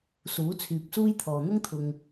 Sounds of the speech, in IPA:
suː˨˥t͡sʰyː˨p̚suː˥jt̪ʰɔː˨ n̪ʊ˥ŋt̪ʰʊ˨ŋ

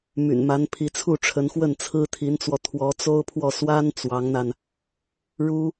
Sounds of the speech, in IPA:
my̰˨˩nma˧˥n pʰi˧˥t͡sʰu˥˩ʈ͡ʂʰə˧˥n xwə˥˩nt͡sʰɹ̩˥t̪ʰi˧˥nt͡swɔ˧ t̪ʰwɔ˧˥t͡so˥ʊ̯pʰwɔ˥˩ swa˥n t͡swɑ˧˥ŋn̪a˧n | ɻu˥

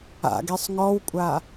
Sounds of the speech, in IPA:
a̰ɡesˤ ŋɔwkʷʼa

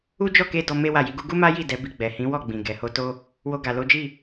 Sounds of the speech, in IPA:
u˦d͡ʒɔ˦˨ke˧ dɔ˧ me˦wa˦˨ji˧ɡu˦ ɡu˦ma˦ji˦˨ dɛ˨˦bi˧ ɡ͡bɛ˨hĩ˨˦wɔ˦˨ɡ͡bĩ˨ ɡɛ˨ho˧to˦ | wo˧ɡa˨ lo˨˦d͡ʒi˦˨

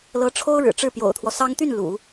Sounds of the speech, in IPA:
lɤ˧˥ʈ͡ʂʰo˥ʊ̯ɻɻ̩˨˩ ʈ͡ʂɻ̩˥˩pjo̰˨˩ʊ̯t̪ʰwɔ˦sɑ˥ŋ t̪y˥˩n lṵ˨˩˦

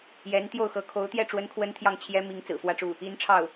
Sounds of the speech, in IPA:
jɛ˧˥nt̪jo˥˩ʊ̯ xɤ˧˥ kʰo˧˥ʊ̯t̪jɛ˥˩ ʈ͡ʂwə˥nkʰwə˥nt̪ʰjɑ˥˩ŋ t͡ɕʰjɛ˥mi˧˥ŋ t͡sɹ̩˨˩fwä˥˧ʈ͡ʂu˥˩ | i˧˥n ʈ͡ʂʰɑ˥˩ʊ̯

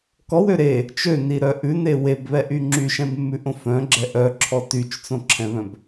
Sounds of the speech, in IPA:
kɔwø ɾe | t͡ʃøniɾœ ʔʉne webβɛʔy ŋ͡ǁyʃɛ̃bmːʉʔõ fœ̃ɡ͡ǁɛ ʔœǁʰɔ tyt͡ʃt͡sõǁʰɛ̃βœ̃b

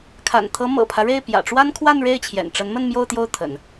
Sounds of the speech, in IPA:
kʰa̰˨˩nt̪ʰɤ˧˥ mɤ̰˨˩pʰä˦ɻe˥˩ɪ̯ pjä̰˨˩ʈ͡ʂwa˥nkʰwa˥˧n ɻe˥˩ɪ̯t͡ɕʰjɛ̰˨˩nʈ͡ʂə˧˥nmə˥˧n mjo˥˧ʊ̯t̪jo˥˩ʊ̯t̪ʰə̰˨˩˦n

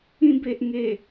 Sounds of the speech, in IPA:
ĩ˧be˨ʔŋe˨˩

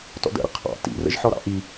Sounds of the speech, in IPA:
tɔ̰də̰ɾə̰ qʰɑ̰ tḭrə̰ʒħɔ ɾɑ̰ʔi

